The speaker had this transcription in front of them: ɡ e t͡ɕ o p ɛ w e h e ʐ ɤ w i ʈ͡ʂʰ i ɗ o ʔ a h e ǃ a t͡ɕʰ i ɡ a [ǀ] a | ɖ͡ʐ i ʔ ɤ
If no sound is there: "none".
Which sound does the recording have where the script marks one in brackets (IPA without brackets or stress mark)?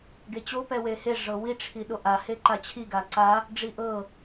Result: ǀ